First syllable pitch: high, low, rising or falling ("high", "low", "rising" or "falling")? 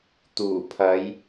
low